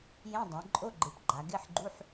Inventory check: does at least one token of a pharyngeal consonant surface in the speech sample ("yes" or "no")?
yes